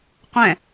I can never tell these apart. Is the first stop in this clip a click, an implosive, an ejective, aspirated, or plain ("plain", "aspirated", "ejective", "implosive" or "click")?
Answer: plain